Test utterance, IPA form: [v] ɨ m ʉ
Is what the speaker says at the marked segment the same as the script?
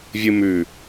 no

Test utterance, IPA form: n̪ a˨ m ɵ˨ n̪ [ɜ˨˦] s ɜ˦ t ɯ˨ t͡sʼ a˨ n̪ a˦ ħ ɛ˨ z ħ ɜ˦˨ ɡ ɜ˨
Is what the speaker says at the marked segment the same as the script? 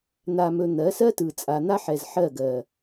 yes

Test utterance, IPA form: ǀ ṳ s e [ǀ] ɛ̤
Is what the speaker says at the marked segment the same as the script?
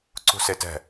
no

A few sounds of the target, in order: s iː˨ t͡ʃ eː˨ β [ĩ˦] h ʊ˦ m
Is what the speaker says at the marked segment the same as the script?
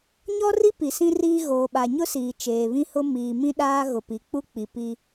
yes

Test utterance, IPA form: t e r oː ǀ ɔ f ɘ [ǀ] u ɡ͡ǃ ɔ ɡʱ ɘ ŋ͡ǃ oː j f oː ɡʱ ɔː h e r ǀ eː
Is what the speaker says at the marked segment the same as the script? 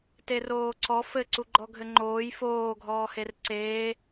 yes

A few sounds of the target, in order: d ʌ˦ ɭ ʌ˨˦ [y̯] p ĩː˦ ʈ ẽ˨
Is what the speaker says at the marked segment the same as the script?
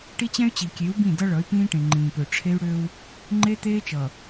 yes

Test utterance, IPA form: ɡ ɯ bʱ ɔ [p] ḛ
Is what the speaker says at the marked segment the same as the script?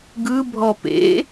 yes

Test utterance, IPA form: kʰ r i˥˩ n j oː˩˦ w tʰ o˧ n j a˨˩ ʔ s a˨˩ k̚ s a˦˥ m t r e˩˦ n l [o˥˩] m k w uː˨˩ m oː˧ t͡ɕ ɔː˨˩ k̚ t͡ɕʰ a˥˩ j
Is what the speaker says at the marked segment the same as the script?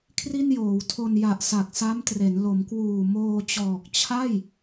no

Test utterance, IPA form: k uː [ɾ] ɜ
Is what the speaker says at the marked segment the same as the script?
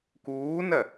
no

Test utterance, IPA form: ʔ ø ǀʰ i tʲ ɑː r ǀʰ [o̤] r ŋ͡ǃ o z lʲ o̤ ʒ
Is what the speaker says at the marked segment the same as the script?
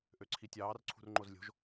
no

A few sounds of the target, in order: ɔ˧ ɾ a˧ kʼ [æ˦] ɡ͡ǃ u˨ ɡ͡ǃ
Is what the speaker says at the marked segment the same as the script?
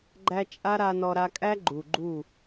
yes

